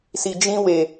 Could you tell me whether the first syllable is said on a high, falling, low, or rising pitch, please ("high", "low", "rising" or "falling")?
low